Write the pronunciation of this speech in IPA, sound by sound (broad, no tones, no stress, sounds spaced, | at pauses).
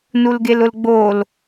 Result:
n u l ɡ e l ʊ l ɡ͡b o l